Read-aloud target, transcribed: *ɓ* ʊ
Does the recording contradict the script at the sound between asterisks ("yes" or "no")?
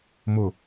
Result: yes